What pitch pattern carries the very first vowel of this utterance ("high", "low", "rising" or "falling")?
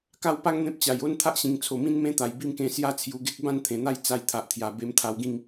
high